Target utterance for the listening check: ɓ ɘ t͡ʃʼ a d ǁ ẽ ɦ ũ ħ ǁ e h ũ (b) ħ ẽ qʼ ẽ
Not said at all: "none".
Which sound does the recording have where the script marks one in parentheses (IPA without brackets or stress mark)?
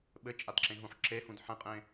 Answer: d